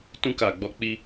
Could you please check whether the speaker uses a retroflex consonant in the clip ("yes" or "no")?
no